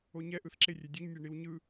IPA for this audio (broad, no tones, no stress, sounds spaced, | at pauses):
o ɲ ɛ ʔ ɯ θ ǁ e rʲ ɛ dʲ o ɲ nʲ e ɳ i w ɲ ɯ